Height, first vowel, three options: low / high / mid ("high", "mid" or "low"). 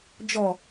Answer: mid